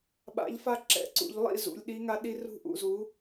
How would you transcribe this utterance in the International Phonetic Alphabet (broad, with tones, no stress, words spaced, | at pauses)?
ɓa̰˨˥ʎfa˦ǁɛ̰˨˥ǀṵ˩˧ʎ lˠḭ˥˨zṵ˩˧lʲɗi˨˥ŋa˨˥ ɗi˦rṳ˥˨ʔṵ˩˧ zu˨˥